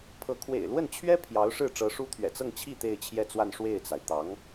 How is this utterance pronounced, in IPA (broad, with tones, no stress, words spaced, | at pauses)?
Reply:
pʰɤ˧˥ kʰwḛ˨˩ɪ̯lwə˥˩nt͡ɕʰɥɛ˥ pʰjɑ˧˥ʊ̯ʂɻ̩˥˩ ʈ͡ʂɤ˧˥ʂu˥t̪ʰɥɛ̰˨˩ t͡sɤ˥˧ŋt͡ɕʰi˥˧ t̪e˥˧ɪ̯t͡ɕʰjɛ˥˧t͡swa˥˧n ʂwe˥˩ɪ̯t͡sa˩ɪ̯ t̪ɑ˧˥ŋ